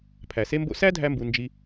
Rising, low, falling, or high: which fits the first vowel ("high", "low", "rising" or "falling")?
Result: low